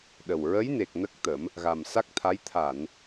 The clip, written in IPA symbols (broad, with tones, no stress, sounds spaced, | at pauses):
ɗ ə˨˩ w ɹ ə˧˥ j n e˨˩ k̚ n ə˦˥ k̚ t̪ ə˨˩˦ m | ɣ a˨˩ m s a˦˥ k̚ t̪ʰ a˧˥ j t̪ʰ a˨˩˨ n